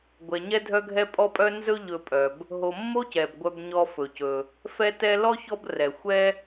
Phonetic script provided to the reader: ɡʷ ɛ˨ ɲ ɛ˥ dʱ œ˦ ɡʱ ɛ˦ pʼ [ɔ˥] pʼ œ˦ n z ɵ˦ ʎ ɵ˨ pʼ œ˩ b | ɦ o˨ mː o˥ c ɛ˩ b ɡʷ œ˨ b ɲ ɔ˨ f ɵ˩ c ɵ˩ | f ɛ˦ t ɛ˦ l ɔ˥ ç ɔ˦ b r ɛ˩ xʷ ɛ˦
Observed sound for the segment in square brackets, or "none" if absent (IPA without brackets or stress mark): ɔ˦